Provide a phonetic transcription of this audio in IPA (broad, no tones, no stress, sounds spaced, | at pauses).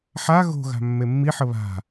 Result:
ħ a ɣ o̤ ɣ a̤ mː e mː i ħ ə β a̤